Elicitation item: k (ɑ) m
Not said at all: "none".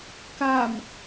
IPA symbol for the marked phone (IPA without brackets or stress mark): a